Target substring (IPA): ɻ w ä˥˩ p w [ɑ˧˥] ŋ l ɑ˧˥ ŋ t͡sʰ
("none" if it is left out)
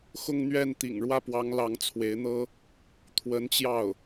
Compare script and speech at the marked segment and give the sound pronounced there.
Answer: ɑ˧˥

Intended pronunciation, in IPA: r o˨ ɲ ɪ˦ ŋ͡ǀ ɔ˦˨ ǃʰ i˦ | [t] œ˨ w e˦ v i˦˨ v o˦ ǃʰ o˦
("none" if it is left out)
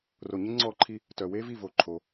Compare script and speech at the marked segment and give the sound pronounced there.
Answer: t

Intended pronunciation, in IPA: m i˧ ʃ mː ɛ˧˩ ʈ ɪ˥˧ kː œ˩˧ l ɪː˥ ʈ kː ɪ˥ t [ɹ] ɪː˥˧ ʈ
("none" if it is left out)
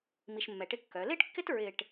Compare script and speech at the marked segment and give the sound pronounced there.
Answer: ɹ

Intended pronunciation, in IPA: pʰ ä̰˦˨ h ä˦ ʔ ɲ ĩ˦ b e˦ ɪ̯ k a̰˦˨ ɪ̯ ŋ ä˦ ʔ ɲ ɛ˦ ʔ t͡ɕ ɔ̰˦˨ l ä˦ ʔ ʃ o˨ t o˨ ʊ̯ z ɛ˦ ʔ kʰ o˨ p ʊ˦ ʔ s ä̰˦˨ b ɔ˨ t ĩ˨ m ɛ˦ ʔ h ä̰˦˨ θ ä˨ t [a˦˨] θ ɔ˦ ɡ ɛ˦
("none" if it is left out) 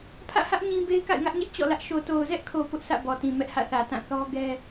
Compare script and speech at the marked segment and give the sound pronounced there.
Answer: ã˦˨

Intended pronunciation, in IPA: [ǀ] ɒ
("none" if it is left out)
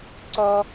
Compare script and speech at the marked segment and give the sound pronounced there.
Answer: ǀ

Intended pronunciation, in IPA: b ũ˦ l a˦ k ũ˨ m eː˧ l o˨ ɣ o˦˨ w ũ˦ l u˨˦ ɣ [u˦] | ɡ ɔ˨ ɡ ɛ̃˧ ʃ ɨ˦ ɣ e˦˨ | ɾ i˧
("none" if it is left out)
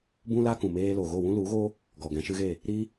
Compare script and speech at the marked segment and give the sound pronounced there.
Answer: o˦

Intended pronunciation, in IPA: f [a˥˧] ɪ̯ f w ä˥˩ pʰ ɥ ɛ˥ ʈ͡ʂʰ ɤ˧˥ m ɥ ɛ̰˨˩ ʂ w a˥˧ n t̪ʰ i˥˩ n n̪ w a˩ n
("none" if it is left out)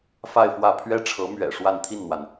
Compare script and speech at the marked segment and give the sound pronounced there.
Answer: a˥˧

